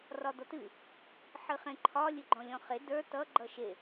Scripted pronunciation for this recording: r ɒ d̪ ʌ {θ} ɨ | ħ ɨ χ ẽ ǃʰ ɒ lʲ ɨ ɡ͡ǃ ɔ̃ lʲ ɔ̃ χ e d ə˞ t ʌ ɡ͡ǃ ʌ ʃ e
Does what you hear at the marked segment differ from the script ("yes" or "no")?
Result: yes